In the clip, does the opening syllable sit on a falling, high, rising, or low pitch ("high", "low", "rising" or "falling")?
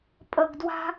low